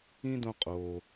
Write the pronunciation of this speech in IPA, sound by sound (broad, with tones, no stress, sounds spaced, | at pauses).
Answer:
ĩ˥ d õ˦ qʼ oː˩